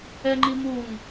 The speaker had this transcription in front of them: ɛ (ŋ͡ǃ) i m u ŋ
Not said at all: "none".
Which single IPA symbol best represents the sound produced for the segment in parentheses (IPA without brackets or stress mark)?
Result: ŋ͡ǃ